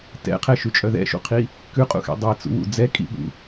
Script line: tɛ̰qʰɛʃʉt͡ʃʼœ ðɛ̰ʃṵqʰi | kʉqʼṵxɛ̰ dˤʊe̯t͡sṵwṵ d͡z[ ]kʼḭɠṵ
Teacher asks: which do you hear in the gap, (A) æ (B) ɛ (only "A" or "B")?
B